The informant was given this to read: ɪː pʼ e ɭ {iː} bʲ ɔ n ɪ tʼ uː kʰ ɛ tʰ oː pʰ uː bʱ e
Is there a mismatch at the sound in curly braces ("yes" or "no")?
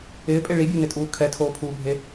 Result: yes